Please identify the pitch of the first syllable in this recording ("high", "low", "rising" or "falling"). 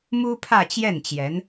high